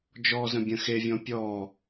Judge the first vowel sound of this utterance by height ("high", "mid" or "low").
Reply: mid